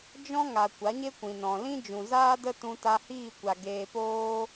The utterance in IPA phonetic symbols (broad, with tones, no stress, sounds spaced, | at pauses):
d͡ʒ ɔ̃˦ ŋ a˨ kʷ a˨˦ ɲ e˦ kʷ ĩ˨ n ɔ̃˨ l ĩ˦ d͡ʒ ũ˨ z aː˦ d ə˦ t ũ˧ t a˧ h iː˦˨ kʷ a˨ ɡ eː˧ p oː˦